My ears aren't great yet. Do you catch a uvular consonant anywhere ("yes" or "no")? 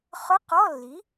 yes